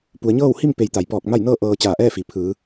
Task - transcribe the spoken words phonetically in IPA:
p u˩˧ ə̯ ɲ ɤː˥˨ w h i˥˨ m p e˩˧ j t̪ a˩ j p ɔː˧˩ k̚ m a˥˨ j n ɤː˥˨ ʔ ɤː˧ t͡ɕ aː˧˩ ʔ ɛː˥˨ f i˩ pʰ ɯː˩˧

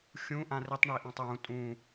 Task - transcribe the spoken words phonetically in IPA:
xʲ ũ ʔ ã r i tˤ ɳ i ʔ ɔ̃ tˤ j ũ tʼ ũ

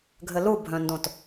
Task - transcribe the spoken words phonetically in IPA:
ɡʱ ɘ l u bʱ œ̃ n d õ t

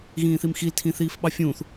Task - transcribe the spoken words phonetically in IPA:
ɣ ĩː θ i m x i l tʰ ĩ θ iː f ɓ ɑ fʲ ũː θ

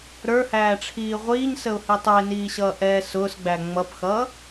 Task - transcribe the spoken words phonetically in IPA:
ɾ ə˞ h æː ʈ͡ʂʰ iː ʁʷ iː ɲ s ə ʊ̯ h i tˤ ə ɪ̯ n iː ɕ ʌː ʔ ɛː s ʊː s ɡ͡b æ ŋ͡m ʌ p x ʌː

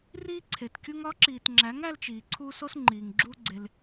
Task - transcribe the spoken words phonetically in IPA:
r iː˦ ǀʰ e˨ t kʲ u˦ ŋ ɒ˨˦ ǁ iː˨ t ŋ͡ǁ æ˨˦ ŋ æ˦ l t͡ʃ iː˨ ǀʰ uː˦ s o˦ s ŋ͡ǃ iː˨ ŋ ɡ͡ǁ uː˦ ɡ͡ǀ e˧ l

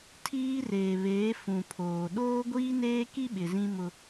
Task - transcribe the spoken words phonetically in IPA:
tʰ iː˦ r eː˨ β eː˨˦ f ũ˨ pʰ oː˨ ɗ oː˦ ɡʷ iː˦ n eː˦ k i˦ ɓ ɪ˨ z ĩ˦ m ʊ˦

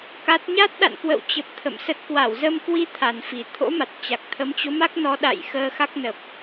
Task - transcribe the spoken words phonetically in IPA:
k a˦˥ t̚ ɲ a˦˥ t̚ ɗ a̰˧˨ n k w ə̰˧˨ w t͡ɕ ə˨˩ p̚ t̪ʰ ə̰˧˨ m s ə˦˥ t̚ k w a˧˩ w z ə˧ m k w i˧ t̪ʰ a˨˩ n f i˨˩ t̪ʰ o̰˧˥ m a˨˩ t̚ t͡ɕ a˨˩ k̚ t̪ʰ ə˨˦ m t͡ɕ o˨˦ m a˦˥ k̚ n ɔ˨˦ ɗ a̰˧˨ j x əː˧ x a˦˥ k̚ n ə˨˩ p̚

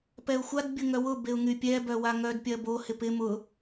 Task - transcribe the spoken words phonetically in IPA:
p ɛ ʊ̯ xʷ a d bʲ ʊ ŋ œ w ʊ b e ʊ̯ ŋ y pʲ ɛ b œ w a ŋ œ d pʲ ɐ b o h ɪ p ɪ m ʊ

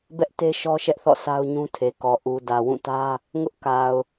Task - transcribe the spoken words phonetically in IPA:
b ɛ˦ ʔ t e˦ ʃ ɔ˦ ʃ ɛ˦ ʔ θ ɔ̰˦˨ s a˦ ʊ̯ ɲ ũ˦ tʰ e˨ k ɔ˨ ʔ u˨ d ä˨ w ũ˦˨ t ä˦ | ŋ ʊ˦ ʔ k a˨ ʊ̯

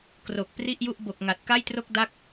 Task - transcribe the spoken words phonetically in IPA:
k r o˨˩ k̚ p r i˥˩ ʔ j u˥˩ ʔ b o˨˩ k̚ ŋ a˨˩ t̚ k a˥˩ j t r o˥˩ k̚ d a˦˥ k̚

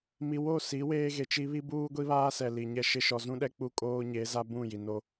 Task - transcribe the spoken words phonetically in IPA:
m i˨ w o˦˨ s i˨˦ w eː˦ ɣ e˨ t͡ʃ i˦ β i˦ b uː˦ ɡʷ i˦ β aː˦ s ɛ˨ l i˨ ɲ ɛ˦˨ ʃ ɪ˦ ʃ ɔ˨ z ũ˦ ɗ ɛ˦ k͡p u˦ kʼ oː˦ ɲ e˨˦ z a˦ b ũ˦˨ j i˨ n o˦

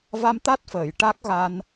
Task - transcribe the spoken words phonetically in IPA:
v a˧ m t̪ a˦˥ t̚ f əː˨˩˨ j ʈ a˦˥ k̚ ɣ a˧ n

